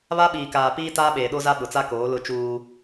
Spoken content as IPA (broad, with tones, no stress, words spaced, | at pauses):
βa˦ɓiː˨kaː˨piː˦ taː˦ɓeː˨ɗo˦za˦ ɓʊ˨t͡sa˦ koː˨˦lʊ˦t͡ʃuː˦